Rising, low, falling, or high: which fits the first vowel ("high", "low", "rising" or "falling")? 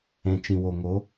low